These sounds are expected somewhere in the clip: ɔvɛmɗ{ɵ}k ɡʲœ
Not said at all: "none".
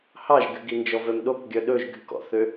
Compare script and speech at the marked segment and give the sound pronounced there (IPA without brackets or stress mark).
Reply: o